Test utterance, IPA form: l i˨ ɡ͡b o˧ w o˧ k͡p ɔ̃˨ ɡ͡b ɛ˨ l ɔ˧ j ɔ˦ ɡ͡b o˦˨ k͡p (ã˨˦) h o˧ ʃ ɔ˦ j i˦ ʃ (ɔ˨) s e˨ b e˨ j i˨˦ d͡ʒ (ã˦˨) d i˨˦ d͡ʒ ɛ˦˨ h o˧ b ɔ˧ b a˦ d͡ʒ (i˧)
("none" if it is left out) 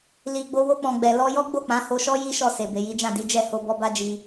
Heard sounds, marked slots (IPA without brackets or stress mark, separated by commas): ã˨˦, ɔ˦˨, ã˦˨, i˧